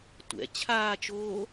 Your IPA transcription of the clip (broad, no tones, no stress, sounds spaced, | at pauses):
tʷ ɛ̰ t͡ɕʰ aː t͡ʃ oː